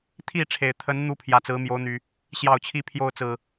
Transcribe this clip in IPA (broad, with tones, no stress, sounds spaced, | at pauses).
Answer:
t̪ʰ i˥˨ ʈ͡ʂʰ e˨˩ ɪ̯ t̪ʰ ə˨˦ n n̪ u˦ pʰ j ä˨˩ t͡s ɹ̩˨˦ m j o˨˦ ʊ̯ n̪ y˨˩ | ɕ j ɑ˥˨ ʊ̯ t͡ɕʰ i˦ pʰ j o˥˨ ʊ̯ t͡s ɹ̩˨˩